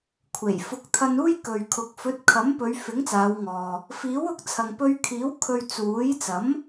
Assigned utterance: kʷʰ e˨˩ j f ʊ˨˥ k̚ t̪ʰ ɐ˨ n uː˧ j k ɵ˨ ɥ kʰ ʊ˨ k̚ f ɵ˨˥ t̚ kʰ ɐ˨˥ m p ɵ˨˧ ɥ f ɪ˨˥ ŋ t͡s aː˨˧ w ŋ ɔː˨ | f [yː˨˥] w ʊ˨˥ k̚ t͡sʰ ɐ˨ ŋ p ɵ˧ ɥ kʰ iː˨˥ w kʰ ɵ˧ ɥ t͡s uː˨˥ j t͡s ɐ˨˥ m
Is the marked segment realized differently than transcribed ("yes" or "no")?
yes